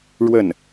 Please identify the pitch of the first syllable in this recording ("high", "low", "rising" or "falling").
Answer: falling